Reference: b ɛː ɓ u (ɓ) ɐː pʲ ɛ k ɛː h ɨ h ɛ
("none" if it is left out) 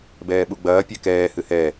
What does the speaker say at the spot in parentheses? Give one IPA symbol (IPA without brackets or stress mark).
ɡ͡b